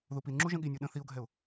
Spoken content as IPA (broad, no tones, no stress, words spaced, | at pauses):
ðupinŋ͡ǁu ʒə̃ɠinʲu ɗə̃ θiʊ̯ɡʱɛʊ̯